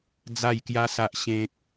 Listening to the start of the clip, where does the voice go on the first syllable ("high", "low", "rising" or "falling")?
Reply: falling